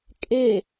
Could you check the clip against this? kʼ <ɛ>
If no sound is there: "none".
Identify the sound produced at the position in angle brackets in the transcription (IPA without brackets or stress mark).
e